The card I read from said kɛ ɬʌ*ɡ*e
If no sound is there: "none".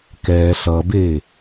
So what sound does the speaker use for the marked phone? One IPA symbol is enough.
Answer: b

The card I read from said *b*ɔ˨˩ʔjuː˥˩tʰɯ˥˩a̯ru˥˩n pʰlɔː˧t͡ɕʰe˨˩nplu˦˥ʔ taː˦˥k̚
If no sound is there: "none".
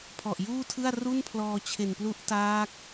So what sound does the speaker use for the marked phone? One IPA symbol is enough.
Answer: pʰ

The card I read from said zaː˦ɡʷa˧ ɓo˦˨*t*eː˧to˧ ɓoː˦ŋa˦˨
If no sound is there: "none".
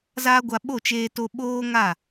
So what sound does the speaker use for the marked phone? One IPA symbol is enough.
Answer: t͡ʃ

